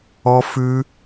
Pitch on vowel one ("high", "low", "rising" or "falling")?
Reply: high